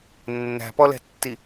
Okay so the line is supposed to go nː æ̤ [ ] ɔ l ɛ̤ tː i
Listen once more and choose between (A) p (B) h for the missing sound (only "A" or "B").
A